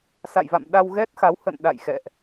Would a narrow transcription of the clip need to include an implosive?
yes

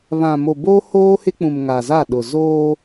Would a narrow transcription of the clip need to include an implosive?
yes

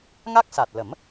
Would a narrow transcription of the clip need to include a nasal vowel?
no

